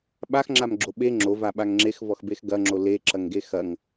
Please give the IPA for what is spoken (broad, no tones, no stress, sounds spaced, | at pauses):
ɓ a x ŋ͡ǁ a m ɡ͡ǁ o ɓ e ŋ͡ǁ o v a ɓ a ŋ ŋ͡ǁ e x v ɔ x b e x ɡ ɐ ŋ͡ǁ o l e ǁ ɐ ŋ ɡ e x ɐ ŋ